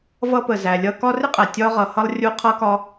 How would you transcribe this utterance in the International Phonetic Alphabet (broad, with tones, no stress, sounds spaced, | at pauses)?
v ʌ˥ p ə˨ z æ˨ lʲ ʌ˥ k ɒ˦ r ɪ˥ qʼ æ˩ tʲ ɒ˦ ʁ ʌ˨ h ʌ˦ lˠ rʲ u˦ qʰ ʌ˥ k ɒ˦